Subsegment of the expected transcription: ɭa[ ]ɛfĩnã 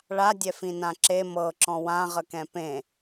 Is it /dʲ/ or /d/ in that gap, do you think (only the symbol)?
dʲ